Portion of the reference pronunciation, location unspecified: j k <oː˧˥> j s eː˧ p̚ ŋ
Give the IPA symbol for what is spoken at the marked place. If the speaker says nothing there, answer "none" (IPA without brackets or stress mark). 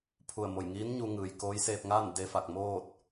oː˧˥